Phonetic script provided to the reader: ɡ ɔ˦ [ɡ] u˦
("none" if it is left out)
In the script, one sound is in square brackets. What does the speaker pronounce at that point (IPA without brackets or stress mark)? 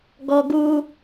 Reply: ɡ